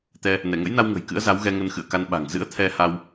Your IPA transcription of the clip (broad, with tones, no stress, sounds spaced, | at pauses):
t̪ ɛ˧ | n ɛ˧˩ ŋ ə̰˧˥ j n a˧ w ŋ ə̤˨˩ j k ɨ̰˧˥ ə̯ z a˨˦ w ɣ ɛ˧ ŋ ə˧ n x ɨ̰˧˨ ə̯ k a˧ n ɓ a̤˨˩ ŋ z ɨ̰˧˥ ə̯ t̪ʰ ɛ˧ h a˧ w